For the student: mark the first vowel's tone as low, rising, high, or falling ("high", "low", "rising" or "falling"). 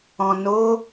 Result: low